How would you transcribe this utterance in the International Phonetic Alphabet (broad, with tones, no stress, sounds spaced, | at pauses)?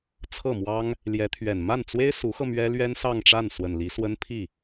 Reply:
t͡sʰ ɤ˥˩ m w ɑ˥ ŋ | l j ɛ˧˥ t̪ʰ ɥ ɛ˨˩ n m a˥˩ n t͡s w e˥ ɪ̯ s u˧˥ x ɤ˧ m ɥ ɛ˥ l ɥ ɛ˥ n s ɑ˥˧ ŋ ʈ͡ʂ a˥˩ n s w ə˨˩ n l i˧˥ s w ə˥ n pʰ i˥˩